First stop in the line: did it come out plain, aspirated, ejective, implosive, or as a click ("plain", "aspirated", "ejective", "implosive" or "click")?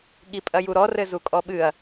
implosive